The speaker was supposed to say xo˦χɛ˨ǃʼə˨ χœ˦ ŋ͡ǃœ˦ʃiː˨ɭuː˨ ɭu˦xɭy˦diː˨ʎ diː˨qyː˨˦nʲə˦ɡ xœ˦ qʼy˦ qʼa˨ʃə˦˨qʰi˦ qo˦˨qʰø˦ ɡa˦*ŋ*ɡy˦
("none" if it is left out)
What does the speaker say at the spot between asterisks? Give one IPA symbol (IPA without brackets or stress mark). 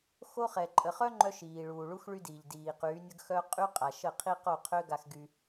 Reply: x